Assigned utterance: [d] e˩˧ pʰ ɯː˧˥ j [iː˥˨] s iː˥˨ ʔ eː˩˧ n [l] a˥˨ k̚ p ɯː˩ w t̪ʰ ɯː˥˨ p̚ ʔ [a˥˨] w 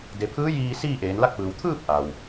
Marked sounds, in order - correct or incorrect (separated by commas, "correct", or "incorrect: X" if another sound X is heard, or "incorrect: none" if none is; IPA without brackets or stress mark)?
correct, incorrect: iː˧, correct, incorrect: a˩